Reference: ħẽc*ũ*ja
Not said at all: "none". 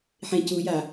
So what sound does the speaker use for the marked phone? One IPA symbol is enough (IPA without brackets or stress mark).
u